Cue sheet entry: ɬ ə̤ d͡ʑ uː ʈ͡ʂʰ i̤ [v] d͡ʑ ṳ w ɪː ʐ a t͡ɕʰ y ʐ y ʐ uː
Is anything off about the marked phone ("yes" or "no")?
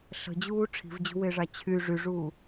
no